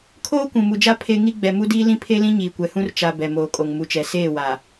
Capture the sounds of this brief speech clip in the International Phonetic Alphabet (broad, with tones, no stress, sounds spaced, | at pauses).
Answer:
kʰ oː˦ kʷ ũ˨ m u˨ d͡ʒ a˦ pʰ e˦ ŋ i˦ ɡ͡b ɛ˨ m u˦ d iː˦ l ĩ˦ pʰ e˦ l ĩ˦ ɲ iː˨ kʷ ɛ˨ h ũ˦ r t͡ʃ a˨ b ɛ˨ m oː˨ kʼ o˨ ŋ m u˨ t͡ʃ ɛ˨ s eː˦˨ w a˨